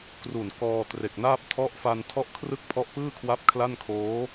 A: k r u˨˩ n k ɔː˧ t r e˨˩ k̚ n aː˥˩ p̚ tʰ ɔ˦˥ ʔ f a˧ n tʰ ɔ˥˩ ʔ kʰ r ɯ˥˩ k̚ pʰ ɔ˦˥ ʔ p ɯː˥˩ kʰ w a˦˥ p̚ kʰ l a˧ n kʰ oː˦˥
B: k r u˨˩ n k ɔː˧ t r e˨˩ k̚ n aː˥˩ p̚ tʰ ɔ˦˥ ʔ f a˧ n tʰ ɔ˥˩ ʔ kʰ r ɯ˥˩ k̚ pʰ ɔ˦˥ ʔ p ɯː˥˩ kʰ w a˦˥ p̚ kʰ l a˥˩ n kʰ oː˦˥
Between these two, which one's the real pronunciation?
B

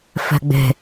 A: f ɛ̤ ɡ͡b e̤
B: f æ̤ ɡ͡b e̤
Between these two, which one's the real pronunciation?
A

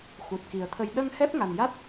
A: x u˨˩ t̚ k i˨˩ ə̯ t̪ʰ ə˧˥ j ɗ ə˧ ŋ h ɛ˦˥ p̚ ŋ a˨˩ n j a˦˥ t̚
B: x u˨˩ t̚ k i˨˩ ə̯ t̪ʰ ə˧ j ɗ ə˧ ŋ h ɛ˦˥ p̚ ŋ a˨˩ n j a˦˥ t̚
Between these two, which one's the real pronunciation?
B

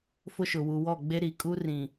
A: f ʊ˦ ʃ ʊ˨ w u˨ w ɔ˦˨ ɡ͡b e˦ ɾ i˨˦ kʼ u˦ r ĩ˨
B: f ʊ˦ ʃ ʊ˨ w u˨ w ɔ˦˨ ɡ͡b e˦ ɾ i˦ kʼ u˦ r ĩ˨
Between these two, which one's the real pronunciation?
A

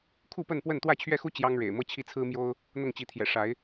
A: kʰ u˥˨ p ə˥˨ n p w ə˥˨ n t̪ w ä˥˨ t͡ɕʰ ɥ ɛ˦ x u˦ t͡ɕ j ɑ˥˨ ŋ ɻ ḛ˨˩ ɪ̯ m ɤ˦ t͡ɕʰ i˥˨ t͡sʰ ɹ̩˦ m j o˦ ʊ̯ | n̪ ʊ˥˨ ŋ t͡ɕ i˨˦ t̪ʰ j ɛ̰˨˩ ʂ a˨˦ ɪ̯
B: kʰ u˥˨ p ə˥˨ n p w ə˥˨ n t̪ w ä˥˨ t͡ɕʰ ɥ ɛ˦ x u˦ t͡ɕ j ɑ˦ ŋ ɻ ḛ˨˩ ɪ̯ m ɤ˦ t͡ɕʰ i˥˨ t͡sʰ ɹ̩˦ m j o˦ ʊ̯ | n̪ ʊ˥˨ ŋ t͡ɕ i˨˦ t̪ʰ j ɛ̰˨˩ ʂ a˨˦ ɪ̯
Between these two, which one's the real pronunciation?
B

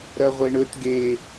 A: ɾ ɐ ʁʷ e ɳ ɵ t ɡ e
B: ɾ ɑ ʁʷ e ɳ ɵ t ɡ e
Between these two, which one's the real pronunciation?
A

